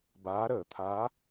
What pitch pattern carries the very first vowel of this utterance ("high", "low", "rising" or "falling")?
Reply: rising